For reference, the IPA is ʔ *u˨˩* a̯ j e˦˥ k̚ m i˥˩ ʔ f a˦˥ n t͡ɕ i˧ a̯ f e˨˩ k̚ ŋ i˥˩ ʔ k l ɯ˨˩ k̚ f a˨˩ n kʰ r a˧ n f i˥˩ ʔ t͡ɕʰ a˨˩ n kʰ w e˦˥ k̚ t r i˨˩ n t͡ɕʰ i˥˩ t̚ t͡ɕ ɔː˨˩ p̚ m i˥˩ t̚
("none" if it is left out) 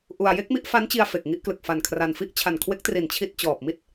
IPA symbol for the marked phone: u˧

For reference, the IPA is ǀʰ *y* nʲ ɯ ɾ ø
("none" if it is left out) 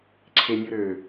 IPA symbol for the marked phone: e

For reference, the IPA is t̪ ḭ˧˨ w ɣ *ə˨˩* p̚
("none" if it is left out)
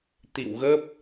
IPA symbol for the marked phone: ə˦˥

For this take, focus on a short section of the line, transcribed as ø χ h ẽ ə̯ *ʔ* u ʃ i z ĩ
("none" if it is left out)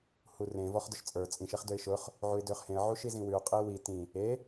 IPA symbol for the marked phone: ʕ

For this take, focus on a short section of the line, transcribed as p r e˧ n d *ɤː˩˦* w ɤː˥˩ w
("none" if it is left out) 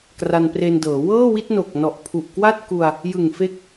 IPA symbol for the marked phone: ɤː˩˦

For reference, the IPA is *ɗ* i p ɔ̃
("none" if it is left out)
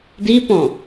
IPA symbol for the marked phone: d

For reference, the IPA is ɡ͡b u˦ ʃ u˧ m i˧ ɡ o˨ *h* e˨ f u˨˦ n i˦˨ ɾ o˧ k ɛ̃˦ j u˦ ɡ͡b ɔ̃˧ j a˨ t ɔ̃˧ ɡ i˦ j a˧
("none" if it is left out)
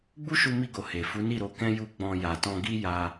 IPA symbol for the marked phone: h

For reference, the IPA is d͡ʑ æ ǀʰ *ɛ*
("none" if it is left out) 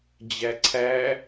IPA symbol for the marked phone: æ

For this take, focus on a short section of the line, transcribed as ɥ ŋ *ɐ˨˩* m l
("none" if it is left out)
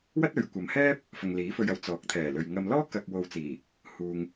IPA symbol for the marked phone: ɐ˨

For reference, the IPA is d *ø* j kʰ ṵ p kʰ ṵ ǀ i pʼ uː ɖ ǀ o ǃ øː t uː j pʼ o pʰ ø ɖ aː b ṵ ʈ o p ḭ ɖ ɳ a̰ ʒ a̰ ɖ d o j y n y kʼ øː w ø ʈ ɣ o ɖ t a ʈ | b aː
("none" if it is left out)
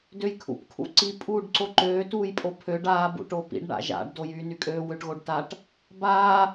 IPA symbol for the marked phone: ø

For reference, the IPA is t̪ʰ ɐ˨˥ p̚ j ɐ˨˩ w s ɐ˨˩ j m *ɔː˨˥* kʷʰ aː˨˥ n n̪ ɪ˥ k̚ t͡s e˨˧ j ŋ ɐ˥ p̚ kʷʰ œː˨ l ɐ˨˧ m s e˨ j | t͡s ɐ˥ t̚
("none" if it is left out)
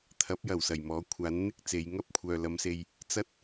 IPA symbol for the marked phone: ɔː˨˥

